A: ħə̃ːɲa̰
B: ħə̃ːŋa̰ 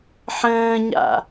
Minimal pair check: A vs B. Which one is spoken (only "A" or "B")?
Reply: A